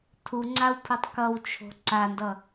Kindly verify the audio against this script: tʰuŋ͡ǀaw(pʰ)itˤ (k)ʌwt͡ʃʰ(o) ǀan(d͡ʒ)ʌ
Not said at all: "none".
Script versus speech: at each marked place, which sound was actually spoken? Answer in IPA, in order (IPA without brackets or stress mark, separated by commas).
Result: pʰ, k, o̤, d